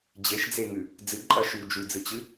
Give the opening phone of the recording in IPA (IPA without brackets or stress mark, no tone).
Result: d͡ʑ